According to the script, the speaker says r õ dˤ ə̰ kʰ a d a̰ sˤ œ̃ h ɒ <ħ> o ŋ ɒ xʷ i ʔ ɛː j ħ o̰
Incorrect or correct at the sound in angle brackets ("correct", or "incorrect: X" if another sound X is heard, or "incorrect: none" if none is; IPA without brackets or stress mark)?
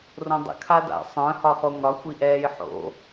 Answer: incorrect: χ